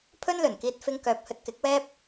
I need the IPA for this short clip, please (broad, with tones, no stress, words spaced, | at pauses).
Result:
pʰɵ˥n lɵ˨˩nkiː˧t̚fɪ˧ŋkœː˨p̚ hɵ˧t̚kɪ˨˥k̚wɛː˥p̚